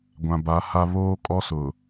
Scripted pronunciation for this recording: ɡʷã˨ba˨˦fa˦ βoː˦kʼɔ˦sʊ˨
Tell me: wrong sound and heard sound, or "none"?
f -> h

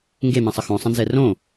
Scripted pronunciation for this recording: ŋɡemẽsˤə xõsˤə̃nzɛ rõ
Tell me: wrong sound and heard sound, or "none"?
none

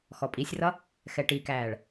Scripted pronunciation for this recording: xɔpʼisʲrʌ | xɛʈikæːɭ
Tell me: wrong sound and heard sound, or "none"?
none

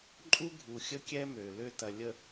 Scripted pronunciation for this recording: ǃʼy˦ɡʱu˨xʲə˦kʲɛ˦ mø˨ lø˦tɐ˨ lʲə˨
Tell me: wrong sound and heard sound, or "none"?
y˦ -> u˦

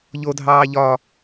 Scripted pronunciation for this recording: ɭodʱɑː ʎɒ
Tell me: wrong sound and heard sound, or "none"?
ɭ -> ʎ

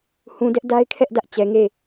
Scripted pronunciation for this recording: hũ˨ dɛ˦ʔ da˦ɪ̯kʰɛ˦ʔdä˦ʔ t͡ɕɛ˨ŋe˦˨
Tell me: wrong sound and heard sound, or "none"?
none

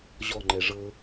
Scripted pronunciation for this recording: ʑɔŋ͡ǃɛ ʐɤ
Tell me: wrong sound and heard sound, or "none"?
none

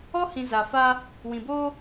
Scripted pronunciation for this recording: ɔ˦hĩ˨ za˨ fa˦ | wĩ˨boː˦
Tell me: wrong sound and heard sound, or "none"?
none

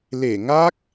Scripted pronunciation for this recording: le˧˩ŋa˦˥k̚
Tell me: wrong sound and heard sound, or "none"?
none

